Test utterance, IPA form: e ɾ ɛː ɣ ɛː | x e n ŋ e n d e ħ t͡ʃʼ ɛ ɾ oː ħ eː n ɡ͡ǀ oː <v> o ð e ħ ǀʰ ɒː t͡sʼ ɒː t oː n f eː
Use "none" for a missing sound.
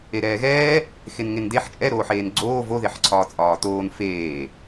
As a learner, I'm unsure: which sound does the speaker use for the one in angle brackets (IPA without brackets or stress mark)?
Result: v